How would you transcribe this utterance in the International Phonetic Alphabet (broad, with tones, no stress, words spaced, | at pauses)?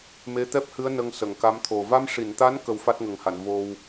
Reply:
me˧˥t̪ɛ˦˥p̚hɨ˧˥ə̯ nə˧ŋsə˨˩˨ŋka˧˥mt̪ʰo˨˩ va˧mʂi˨˩˨nt̪a˧˥n kə˧wfa˦˥t̚ŋə˨˩ŋha˨˩˨n vo˧w